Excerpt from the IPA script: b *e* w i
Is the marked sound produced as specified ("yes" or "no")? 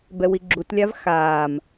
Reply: no